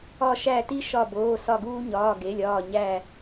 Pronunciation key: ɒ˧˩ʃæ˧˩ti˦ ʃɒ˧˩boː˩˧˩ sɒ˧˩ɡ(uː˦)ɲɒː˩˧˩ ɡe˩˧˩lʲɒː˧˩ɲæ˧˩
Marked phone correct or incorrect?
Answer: correct